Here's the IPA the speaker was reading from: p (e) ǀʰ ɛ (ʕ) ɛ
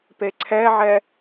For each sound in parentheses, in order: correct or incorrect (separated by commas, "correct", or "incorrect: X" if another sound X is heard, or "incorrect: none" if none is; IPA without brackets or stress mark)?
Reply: correct, correct